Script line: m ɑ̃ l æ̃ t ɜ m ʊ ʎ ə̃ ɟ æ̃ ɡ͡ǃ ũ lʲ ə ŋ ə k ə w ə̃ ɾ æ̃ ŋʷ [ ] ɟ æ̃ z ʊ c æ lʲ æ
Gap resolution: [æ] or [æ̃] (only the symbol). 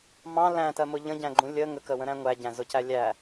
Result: æ